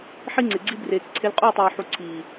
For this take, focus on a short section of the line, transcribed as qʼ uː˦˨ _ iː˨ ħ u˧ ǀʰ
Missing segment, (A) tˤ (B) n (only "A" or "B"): A